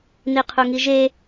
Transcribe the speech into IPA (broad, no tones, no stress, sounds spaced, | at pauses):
n i qʰ u ŋ i ʒ e